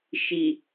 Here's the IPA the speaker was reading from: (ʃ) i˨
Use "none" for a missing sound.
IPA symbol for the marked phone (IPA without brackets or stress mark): ʃ